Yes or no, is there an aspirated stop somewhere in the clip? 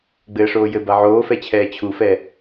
yes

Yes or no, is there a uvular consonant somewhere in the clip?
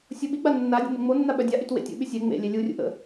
no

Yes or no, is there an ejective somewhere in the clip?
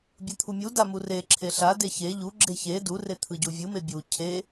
no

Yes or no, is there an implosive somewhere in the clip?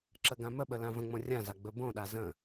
yes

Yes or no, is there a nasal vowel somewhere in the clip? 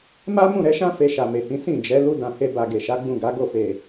yes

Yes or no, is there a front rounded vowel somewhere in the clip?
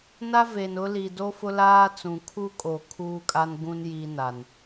no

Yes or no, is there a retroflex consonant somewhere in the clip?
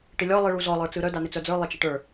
yes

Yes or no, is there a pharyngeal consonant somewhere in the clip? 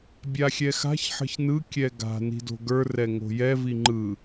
yes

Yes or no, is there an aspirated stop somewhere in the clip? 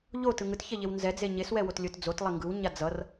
no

